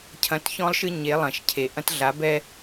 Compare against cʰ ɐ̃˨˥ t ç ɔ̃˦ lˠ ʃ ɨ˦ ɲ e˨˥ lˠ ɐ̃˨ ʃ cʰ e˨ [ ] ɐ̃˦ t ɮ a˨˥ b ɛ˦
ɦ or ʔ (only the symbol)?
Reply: ʔ